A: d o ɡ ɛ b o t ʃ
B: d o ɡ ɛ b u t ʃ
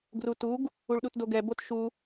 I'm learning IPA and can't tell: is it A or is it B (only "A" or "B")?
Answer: A